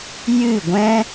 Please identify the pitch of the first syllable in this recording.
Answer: falling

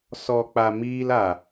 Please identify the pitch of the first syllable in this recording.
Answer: low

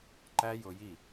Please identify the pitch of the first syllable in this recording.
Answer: high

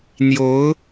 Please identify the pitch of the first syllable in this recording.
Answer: rising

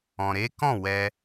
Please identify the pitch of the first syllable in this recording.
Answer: low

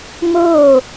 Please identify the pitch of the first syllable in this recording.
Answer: falling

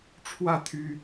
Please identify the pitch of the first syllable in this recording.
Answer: falling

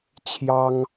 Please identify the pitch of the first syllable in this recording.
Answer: high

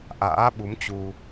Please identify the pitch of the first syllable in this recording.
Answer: rising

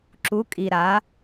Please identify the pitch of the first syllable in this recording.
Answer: rising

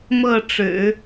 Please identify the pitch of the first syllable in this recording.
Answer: falling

